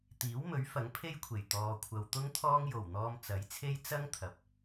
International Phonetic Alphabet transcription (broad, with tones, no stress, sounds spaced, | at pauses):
t̪ iː˨˥ w m ɵ˨˥ ɥ f ɐ˨˥ ŋ pʰ e˥ j kʷʰ e˨˩ j t̪ ɔː˨ kʷʰ ɐ˨ w t̪ ʊ˥ ŋ t̪ʰ ɔː˥ ŋ j o˨˩ w n̪ ɔː˧ m t͡s ɐ˨˥ j t͡sʰ e˥ j t͡s ɐ˥ ŋ t̪ʰ ɐ˨˥ p̚